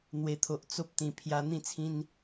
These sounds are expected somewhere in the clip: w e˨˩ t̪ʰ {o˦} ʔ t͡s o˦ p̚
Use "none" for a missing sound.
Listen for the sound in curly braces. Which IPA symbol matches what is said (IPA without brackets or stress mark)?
o˨